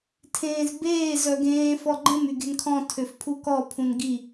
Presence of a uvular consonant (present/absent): absent